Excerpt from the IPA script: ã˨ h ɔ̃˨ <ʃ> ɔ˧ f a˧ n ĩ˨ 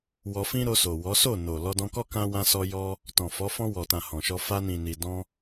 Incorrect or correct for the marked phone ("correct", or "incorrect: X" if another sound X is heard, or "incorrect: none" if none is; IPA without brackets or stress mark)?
correct